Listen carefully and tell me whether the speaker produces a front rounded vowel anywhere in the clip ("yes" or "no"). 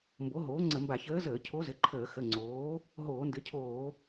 no